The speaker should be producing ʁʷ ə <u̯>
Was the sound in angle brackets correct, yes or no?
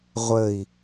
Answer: no